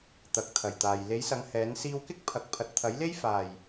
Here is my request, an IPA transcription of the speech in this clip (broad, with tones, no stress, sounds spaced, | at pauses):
t̪ ɐ˨˥ k̚ t̪ʰ ɐ˨˩ j t̪ aː˨ j l e˨˥ j s ɐ˨˧ ŋ h ɛː˨˥ n s iː˧ w k ɪ˥ k̚ pʰ ɐ˨ k̚ pʰ ɐ˨ t̚ t̪ʰ ɐ˨˥ j l e˥ j f aː˨˩ j